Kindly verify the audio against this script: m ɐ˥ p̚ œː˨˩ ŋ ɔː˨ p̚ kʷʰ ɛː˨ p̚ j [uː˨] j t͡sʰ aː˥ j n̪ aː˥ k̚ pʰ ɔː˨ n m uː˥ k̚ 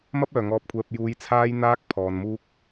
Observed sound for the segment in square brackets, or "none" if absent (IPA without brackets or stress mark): uː˨˥